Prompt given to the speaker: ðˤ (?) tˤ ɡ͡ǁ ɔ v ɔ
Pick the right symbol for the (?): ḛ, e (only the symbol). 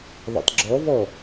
ḛ